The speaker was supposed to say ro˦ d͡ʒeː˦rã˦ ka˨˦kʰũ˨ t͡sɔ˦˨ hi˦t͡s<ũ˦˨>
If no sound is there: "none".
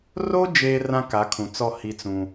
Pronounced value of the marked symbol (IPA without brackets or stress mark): ũ˦